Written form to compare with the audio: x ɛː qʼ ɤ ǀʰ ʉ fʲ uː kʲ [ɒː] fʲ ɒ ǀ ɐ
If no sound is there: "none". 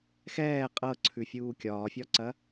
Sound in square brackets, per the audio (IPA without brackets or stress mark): ɒː